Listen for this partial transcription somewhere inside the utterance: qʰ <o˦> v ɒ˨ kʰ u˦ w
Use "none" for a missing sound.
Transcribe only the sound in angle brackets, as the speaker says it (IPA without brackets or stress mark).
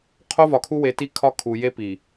o˦